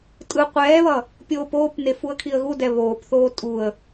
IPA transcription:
tʼɯ qʷɛːβʌ | pʲoːpoːpne fuə̯kʰiə̯ɣudɛ βoːpθoː tʼuə̯

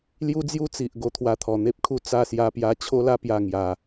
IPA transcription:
lju˦d͡zju˦t͡si˨ʔ ɡo˧t̪ʰwa˧t̪ʰɔ˨˩ n̪e˦p̚kʰu˧ t͡sa˥˧sja˧pja˧ t͡ɕʰo˧la˧pja˨˩ ŋja˨˩

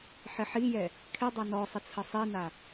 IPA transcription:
ħɪħijɛ | kʰɪdˤa nɔ sˤɪt͡sʰəsˤina

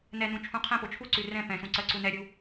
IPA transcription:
nɛnũ t͡ʃʰũqʰɛ̃po t͡ʃʰuǀʉ rɛ̃ pɛ̃sũǀɜ ǀunɛɾʲu

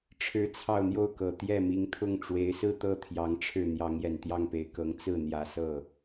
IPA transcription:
ʈ͡ʂʰɻ̩˧˥ t͡sʰɑ˥˧ʊ̯n̪jo˥˩ʊ̯kɤ˨˩ t̪jɛ˥˩mi˧˥ŋt̪ʰʊ˥˩ŋ ʈ͡ʂwe˧˥ɪ̯sɹ̩˥˧t̪ɤ˥˩ t̪ʰjɑ˧˥ŋʈ͡ʂʰɻ̩˥˩ n̪jɑ˧˥ŋjɛ˨˩nt̪jɑ˥˩ŋpe˨˩ɪ̯ kɤ˧˥ŋ t͡sɹ̩˥˩n̪jä˨˩sɤ˥˩

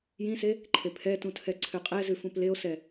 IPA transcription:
jĩse | ǃʰepʰɛtũtʰɛ ǀʰøqʼɛzʉ fũpleo̯sɛ

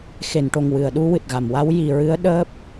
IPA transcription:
xe˨˩˨nʈo˨˩ŋ wɨ˨˩˨ə̯ɗu˧ wɨ˨˩t̚ɣa˨˩˨mwa˧˥w ji˨˩ɹɨ˧˥ə̯ ɗəː˦˥p̚

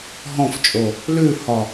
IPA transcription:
ɦɔ̃ft͡ʃʼo | lʉhɒ

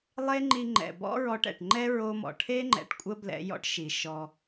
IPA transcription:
lˠe˦ŋ͡ǃi˧ŋ͡ǃɛ̰˨ bɔ̰˦ɹɔ˧ʈɛ̰˨ʈŋ͡ǃɛ˦ ɹo˧mɔ̰˨ ʈʰe˦ ŋ͡ǃɛ̰˨ʈkʷʼə˦ blɛ̰˧ jɔ̰˦ʈʃi˨ʃɔ˧

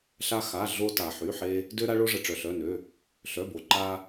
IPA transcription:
ɬa˧ xa˩˧˩ɮo˧ ta˩ħy˩˧˩ħe˧ | dø˧ɾa˧ɭo˧ʐə˩ ʈ͡ʂœ˩ɬœ˩˧˩nø˩˧˩ | ɬœ˩˧˩bo˩ ǃa˧

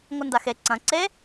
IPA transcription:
ŋʷɨndaxe ǀɐ̃ ǀe

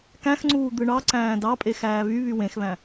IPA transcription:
kæ̃xŋ͡ǀuː d̪ɯɳɑǀæ̃ː dɑpʼe xæːβyβy wẽxβæ̃

